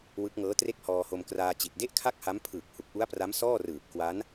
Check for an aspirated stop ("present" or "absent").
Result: present